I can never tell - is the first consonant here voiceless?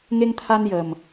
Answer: no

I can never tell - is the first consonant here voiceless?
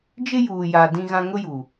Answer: no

